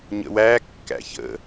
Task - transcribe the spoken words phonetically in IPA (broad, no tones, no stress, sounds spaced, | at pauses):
ɲ ə̰ w æ kː æ̰ ç ə̰